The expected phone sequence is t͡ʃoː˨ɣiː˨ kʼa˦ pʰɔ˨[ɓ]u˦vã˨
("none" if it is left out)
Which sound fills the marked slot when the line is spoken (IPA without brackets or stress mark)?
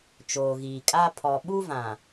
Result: ɓ